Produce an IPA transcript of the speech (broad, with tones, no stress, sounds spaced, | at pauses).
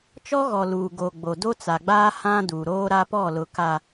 t͡ʃ ɔ˦ ɣ ɔ˨ l uː˨ ɡ o˨ ɡ͡b o˨ d o˦ t͡s a˨ ɡ͡b aː˦ h ã˦ d uː˨ ɾ oː˦ ɾ a˦ p ɔ˦˨ l ʊ˨ k a˨